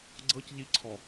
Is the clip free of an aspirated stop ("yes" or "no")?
no